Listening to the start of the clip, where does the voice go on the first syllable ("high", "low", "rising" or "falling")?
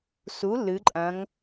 rising